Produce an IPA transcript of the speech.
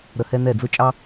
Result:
ɾ ə˨ h ɛ˦ n ɛ˦˨ d͡z ʊ˦ t͡ʃʼ ɑ˦

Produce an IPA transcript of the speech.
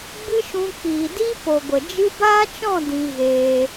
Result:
ɡ͡b ɨ˦ ʃ ũ˧ k͡p iː˨ d i˦ p o˨ ɡʷ ə˨ d͡ʒ ɨ˧ b aː˦ t͡ʃ ɔ̃˦˨ d ĩ˧ ɣ eː˧

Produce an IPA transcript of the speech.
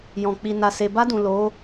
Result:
j ɔ̃˨ k͡p i˨ n a˨ s e˨ b a˧ d ũ˨ l o˨˦

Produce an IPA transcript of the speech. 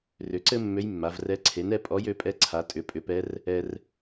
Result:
r ʏ˩˥ ǀ ɘ˥ mː ø˧˥ j mː a˩˧ v r ɛ˧˥ ǀʰ e˩˥ n ɛ˧˥ pʼ ɔ˧˥ j ø˩˥ pʼ ɛ˧˥ ǀʰ a˩˥ tʼ ʏ˩˥ pʼ ʏ˩˥ p ɛ˧˥ r | ɛ˧ r

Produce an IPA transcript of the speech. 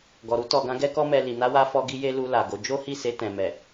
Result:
ɡ ɔ˨ ɾ u˧ t ɔ˨ ɡ ã˨˦ ɡ ɛ˦ k ɔ˦ m ɛ˧ l i˨ n a˧ w a˧ f ɔ˧ ɡ i˧ j e˧ l u˧ l a˨ ɡ o˨˦ d͡ʒ o˦ h i˦˨ s e˧ t ɛ̃˨ m ɛ˨

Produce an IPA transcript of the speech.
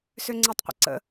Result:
s ø ŋ͡ǀ e tˤ qʷ ə̰ ǀ ə̰

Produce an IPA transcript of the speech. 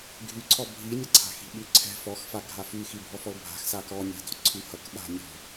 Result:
ɡʱ y ǀʰ ɔ bʱ i nʲ ʌ ǀʰ a̤ x i̤ ɓ y ǀʰ ɛ̤ f ɔ x f a ɡʱ a f y x i bʱ ɔ f ɔ l bʱ a̤ x s a k ɔ nʲ a̤ d ɔ̤ ǀʰ y h ʌ k ɓ a̤ nʲ ɔ̤

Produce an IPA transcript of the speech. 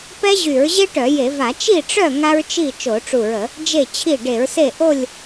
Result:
p ɛ˥ ʑ y˧˩˧ ɹ ʑ e˥ ʈ œ˧˩˧ j e˧˩˧ v a˧˩˧ t͡ʃ i˥˨ ʈ͡ʂ œ˥˨ ŋ a˥ ɹ t͡ʃ i˥˨ t͡ʃ o˧˩˧ ʈ͡ʂ u˧˩ ɹ ə˧˩˧ | d͡ʒ e˧˩ t͡ɕʰ i˧˩ ɖ e˧˩˧ ɹ s e˥˨ ʔ o˥˨ lʲ

